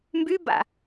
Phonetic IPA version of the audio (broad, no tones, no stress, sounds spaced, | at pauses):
m b y b a̰